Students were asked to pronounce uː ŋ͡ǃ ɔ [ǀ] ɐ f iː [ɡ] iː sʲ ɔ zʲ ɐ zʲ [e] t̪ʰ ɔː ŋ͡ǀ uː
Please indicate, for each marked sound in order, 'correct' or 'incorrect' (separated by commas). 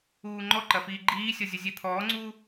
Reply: incorrect, incorrect, correct